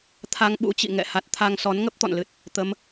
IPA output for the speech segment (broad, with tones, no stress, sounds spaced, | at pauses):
t̪ʰ a˧ ŋ ɓ ṵ˧˥ t͡ɕ ḭ˧˨ ŋ ɛ̰˧˨ h a˨˩ t̚ t̪ʰ a˧ ŋ s ɔ˨˦ n ŋ ə˦˥ p̚ t̪ ɔ̰˧˨ n l ɨ˨˩ t̚ | t̪ ə˨˦ m